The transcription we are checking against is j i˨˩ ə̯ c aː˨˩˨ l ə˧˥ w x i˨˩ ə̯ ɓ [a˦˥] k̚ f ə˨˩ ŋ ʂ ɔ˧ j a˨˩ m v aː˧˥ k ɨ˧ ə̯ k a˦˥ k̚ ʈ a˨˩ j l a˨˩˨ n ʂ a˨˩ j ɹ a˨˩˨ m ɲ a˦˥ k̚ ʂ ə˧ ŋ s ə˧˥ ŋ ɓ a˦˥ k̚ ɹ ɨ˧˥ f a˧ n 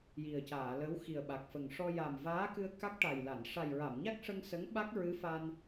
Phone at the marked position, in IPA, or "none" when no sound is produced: a˨˩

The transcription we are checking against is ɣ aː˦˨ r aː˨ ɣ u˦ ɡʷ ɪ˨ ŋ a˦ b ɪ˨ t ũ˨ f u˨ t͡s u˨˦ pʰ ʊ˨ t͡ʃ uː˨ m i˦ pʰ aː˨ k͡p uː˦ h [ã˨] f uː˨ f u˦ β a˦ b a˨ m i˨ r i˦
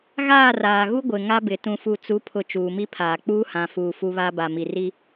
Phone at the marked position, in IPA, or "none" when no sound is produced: ã˨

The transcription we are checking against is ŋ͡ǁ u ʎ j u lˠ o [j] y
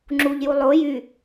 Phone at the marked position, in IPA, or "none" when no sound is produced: j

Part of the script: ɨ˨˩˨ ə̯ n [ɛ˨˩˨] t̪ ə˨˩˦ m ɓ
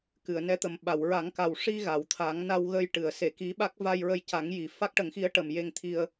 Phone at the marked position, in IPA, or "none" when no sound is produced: ɛ˧˥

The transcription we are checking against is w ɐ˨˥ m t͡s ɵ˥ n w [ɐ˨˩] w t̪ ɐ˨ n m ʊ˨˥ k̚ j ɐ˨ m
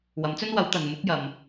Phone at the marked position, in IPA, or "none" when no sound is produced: ɐ˨˥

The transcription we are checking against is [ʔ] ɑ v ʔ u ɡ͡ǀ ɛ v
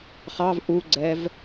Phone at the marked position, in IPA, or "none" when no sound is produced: χ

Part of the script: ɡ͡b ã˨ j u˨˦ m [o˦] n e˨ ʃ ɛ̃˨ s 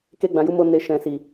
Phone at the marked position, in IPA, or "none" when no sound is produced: o˧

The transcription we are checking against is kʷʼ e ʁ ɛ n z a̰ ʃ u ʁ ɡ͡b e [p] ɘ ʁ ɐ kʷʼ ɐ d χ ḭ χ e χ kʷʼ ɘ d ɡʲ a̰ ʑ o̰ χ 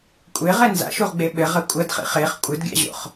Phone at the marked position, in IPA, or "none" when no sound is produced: ɓ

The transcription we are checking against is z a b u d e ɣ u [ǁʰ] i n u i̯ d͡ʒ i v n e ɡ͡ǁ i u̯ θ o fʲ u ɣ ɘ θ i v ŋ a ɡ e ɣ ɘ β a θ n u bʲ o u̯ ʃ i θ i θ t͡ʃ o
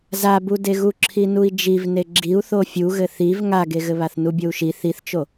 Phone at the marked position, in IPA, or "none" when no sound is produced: ǁʰ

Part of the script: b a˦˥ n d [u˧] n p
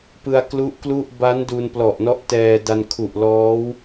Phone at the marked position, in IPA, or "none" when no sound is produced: u˧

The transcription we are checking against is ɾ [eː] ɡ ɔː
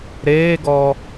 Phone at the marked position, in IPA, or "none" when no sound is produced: eː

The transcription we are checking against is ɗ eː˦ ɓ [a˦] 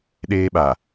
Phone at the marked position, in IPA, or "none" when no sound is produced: a˨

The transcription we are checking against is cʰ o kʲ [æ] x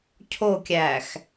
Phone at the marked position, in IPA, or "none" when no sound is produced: æ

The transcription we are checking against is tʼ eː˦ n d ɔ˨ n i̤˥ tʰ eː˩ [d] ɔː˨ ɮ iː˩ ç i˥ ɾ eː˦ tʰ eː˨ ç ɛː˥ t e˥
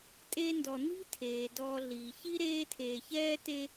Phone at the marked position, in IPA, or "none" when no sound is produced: d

